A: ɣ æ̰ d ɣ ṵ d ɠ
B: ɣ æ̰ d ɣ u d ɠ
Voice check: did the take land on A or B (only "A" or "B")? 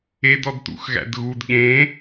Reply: B